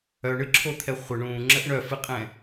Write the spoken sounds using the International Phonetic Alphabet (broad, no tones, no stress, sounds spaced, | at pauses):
œ ɳ ɨ ǁʰ o t̪ʰ ɛ χʷ ə ɳ ũː ŋ͡ǁ ə ʔ ɳ œ f ɨ qʼ ɛ̃